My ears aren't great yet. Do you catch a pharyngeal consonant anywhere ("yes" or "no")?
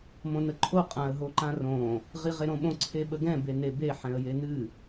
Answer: yes